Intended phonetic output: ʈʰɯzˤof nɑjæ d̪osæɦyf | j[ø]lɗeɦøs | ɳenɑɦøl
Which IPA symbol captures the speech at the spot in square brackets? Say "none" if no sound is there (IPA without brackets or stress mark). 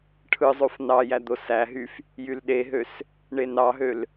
y